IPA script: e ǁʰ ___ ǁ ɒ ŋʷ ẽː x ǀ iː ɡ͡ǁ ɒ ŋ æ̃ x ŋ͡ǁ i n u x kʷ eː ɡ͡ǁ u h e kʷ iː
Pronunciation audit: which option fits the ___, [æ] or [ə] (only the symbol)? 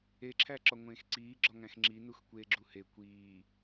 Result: æ